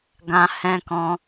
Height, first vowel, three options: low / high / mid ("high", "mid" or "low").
low